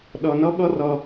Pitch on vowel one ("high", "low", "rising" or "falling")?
low